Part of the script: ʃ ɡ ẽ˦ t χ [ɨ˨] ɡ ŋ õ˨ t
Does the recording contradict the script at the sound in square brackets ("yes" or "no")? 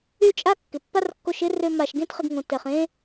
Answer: yes